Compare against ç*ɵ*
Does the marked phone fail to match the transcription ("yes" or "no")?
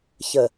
yes